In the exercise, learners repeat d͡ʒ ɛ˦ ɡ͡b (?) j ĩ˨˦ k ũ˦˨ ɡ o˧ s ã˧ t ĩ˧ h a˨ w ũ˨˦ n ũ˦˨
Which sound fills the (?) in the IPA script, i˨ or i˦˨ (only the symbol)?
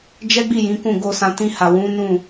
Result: i˦˨